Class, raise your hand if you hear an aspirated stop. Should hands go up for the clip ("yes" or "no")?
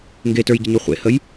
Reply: no